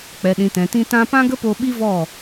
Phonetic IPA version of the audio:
k͡p ɛ˨ ɗ ĩ˨ t ɛ̃˨ t ĩ˧ t ã˧ p ã˦ ɡ ə˦ p o˧ ɓ i˦ v ɔ˦˨

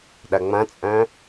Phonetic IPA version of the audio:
ɗ ɐ ŋ͡m ɐ̃ t͡sʼ œ̃

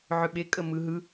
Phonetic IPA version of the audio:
ʕ ʏ ɓ e kʼ ə m ɯ ɦ ɯ

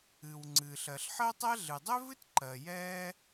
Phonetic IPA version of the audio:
ɨ˩ w ŋ͡ǀ ɨː˩ ɬ ɜ˩ ɬ ħ ɜ˥ tˤ ɛ˥ ɮ ɨ˩ dˤ ʏ˥ v ɨ˥ t ǃ ɜ˩ j ɛː˥

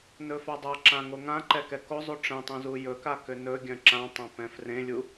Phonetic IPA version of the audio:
n ɵ f a dˤ a ǁ ã ŋ o ŋ ã ǃ ɛ k ɛ k o zˤ u ʈ͡ʂ ɛ̃ tˤ ũ z u j ɵ k a k ʏ n ɵ ɡʲ œ̃ ǁ ã tˤ ã p ɛ̃ f r ẽ lʲ u

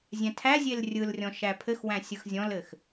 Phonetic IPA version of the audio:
zʲ æ̃ tʰ æ zʲ e l rʲ ɯ l rʲ ɔ̃ ʃ æ pʰ ɘ x w æ̃ sʲ ɯ x zʲ ɔ̃ l ɘ x

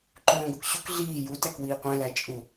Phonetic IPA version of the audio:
ǃ õː ɡ u k ɕ u k ɮ iː j u t æ k w iː qʷ æ̃ l æ t͡ʃʼ u

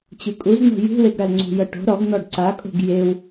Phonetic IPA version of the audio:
t͡ɕ ɯ kʼ u z n̪ o̤ j ṳ w e ɡ ɾ a l ŋ͡ǀ ṳ j ɤ ʈ o̤ ɾ ɔ ɡ n̪ ɔ ɖ ǀ a kʼ o̤ ɡ j e w

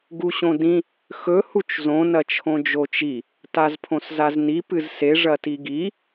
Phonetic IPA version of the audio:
ɡ u ɕ õ d ĩ | x ɵ h u t͡ʃ z õ n ɐ t͡ʃʰ õ d͡ʒ o t͡ʃ i | t a z pʰ õ s z a z n i p ɨ z s e ʐ ɐ t i ɡ i

